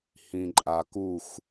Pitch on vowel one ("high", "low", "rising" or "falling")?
low